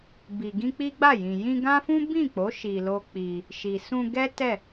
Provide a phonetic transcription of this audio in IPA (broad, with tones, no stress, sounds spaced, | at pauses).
b i˨ ɡ ĩ˧ k͡p i˦ ɡ͡b a˦˨ j ĩ˨ j ĩ˧ ɡ ã˦ f ũ˦ b ĩ˦˨ k͡p o˨˦ ʃ i˧ l o˦ k͡p i˧ | ʃ i˨ s ũ˧ ɡ ɛ˦ t ɛ˦˨